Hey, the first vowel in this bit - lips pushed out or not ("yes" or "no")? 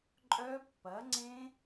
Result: yes